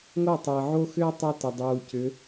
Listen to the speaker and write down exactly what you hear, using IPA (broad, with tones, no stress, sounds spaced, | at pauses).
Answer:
ŋ o˦˨ tˤ əː˨ ʕ o˦ x ʏː˦ tˤ u˦ t ɛ˨ dˤ uː˨ c ʏ˨˦